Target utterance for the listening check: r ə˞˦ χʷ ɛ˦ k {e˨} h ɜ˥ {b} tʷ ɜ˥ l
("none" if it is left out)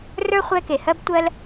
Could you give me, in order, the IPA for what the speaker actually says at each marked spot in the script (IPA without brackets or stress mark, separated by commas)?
e˨, b